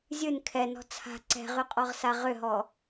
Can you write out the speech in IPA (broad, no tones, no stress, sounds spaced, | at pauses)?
zʲ ɨ n kʰ ɛ n ɔ̤ t͡sʰ a̤ ǀ ɛ̤ ʁ y qʼ ɔ ʁ s a ʁ ʏ ɦ ɔ